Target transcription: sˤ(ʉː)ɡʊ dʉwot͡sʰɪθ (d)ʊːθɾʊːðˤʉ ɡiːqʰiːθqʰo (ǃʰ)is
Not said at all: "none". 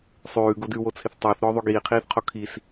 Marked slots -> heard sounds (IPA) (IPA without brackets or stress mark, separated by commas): ʉː, tˤ, kʰ